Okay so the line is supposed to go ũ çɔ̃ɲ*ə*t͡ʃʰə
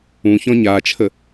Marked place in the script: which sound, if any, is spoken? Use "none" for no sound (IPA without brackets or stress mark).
a